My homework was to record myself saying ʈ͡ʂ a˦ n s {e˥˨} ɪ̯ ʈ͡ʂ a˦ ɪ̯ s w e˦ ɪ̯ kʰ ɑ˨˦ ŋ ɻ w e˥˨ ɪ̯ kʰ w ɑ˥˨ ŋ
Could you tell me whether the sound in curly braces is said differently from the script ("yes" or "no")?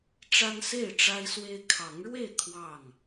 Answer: no